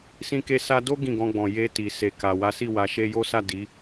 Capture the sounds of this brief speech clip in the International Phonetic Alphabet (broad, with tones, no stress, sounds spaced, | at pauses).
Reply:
s ĩ˧ k e˧ s a˧ d o˦ ɡ ĩ˦˨ ɡ ɔ̃˧ ɡ͡b ɔ̃˨ j e˧ t i˨ s e˨ k a˨ w a˨˦ s i˦˨ w a˨ ʃ e˧ j o˦ s a˦˨ d i˨˦